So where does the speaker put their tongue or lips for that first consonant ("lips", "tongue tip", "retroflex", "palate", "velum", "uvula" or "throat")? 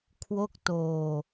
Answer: velum